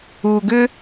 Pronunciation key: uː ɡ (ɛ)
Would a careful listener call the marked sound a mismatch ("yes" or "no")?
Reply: yes